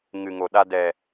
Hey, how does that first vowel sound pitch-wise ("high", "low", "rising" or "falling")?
low